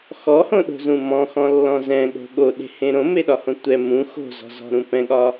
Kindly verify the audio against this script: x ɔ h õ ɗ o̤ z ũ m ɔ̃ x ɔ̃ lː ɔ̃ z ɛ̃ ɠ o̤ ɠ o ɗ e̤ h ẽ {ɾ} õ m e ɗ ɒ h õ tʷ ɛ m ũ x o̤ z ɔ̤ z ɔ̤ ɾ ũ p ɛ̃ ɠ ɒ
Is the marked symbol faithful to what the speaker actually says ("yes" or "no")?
yes